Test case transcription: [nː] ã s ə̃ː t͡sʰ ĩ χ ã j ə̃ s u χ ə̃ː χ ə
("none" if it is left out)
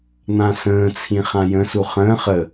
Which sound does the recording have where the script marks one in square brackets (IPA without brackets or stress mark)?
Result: n̪